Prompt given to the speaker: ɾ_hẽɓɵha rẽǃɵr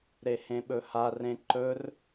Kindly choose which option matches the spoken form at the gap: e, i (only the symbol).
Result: e